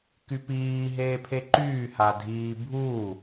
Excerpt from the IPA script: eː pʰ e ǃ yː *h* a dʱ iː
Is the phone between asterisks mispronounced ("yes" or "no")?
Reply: no